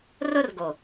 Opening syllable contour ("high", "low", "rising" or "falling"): high